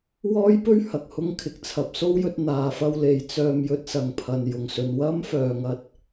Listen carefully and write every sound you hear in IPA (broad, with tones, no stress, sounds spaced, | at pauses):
w ɔː˥ j p ɵ˥ ɥ h ɐ˨ k̚ h ʊ˥ ŋ kʰ ɪ˨˥ k̚ t͡sʰ ɐ˨ p̚ s o˥ w j ɵ˧ t̚ n̪ aː˨ f ɐ˧ w l e˨ j t͡s œː˧ m j ɵ˧ t̚ s ɐ˨ ŋ pʰ ɐ˨ n j ʊ˨ ŋ s ɵ˨˧ n w ɐ˥ m f œː˨ ŋ ɐ˧ t̚